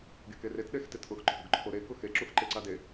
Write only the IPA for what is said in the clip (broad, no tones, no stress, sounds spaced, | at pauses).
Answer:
ɡ e k e r e t ɗ e x t e t ʔ ʊ x ǃʰ ʊ ɡ ǃʰ o ɾ e k ʊ x e ǁ u x ǃ e ǀ a d e